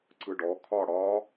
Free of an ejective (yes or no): yes